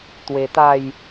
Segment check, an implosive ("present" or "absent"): absent